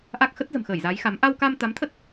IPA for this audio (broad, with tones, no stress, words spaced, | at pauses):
ʔa˦˥k̚xə˦˥t̚zə̤˨˩m xəː˧˩jza˨˦jxa˨˦m ʔa˧wka˧m t̪a˨˦mt̪ʰə˦˥t̚